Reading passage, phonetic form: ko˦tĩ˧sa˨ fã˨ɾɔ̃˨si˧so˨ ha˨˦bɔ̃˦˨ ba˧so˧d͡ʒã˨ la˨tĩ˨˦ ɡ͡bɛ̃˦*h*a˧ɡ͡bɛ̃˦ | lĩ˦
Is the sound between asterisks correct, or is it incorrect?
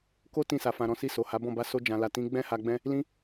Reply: correct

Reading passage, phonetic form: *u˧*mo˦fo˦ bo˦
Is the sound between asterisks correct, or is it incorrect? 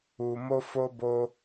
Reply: correct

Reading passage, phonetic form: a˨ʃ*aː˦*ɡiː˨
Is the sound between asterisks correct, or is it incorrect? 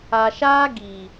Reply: correct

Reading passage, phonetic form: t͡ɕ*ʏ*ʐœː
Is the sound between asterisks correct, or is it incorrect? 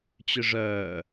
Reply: correct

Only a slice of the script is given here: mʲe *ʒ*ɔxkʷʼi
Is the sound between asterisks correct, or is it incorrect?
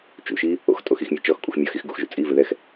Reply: incorrect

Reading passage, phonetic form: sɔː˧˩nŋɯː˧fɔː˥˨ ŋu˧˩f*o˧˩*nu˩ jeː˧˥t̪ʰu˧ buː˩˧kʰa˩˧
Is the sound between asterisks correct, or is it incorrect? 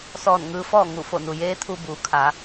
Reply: correct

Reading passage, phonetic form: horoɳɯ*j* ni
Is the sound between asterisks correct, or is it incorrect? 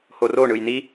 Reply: correct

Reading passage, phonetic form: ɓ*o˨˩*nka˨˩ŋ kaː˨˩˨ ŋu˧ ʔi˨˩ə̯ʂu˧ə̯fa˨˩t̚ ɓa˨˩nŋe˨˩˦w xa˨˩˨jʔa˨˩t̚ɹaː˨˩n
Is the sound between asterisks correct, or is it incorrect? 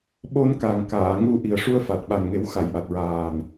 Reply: incorrect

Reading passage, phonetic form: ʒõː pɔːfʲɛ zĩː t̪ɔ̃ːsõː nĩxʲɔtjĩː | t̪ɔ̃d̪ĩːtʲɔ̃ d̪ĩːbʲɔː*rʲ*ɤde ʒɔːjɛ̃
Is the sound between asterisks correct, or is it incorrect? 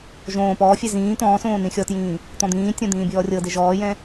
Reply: correct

